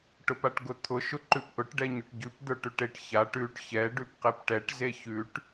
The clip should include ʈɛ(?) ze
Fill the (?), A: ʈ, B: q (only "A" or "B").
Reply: A